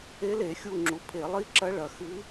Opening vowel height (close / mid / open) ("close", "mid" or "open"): mid